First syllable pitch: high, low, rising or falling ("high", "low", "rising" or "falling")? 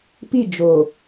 falling